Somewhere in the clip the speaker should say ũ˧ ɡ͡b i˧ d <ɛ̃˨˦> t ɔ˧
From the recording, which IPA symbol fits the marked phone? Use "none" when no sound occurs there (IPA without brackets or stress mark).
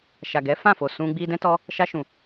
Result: ɛ̃˧